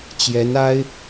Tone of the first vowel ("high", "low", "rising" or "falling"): rising